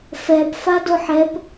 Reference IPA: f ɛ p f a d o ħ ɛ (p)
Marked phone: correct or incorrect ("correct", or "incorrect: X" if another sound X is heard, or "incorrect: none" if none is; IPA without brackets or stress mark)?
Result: correct